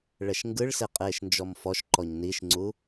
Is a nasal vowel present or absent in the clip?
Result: absent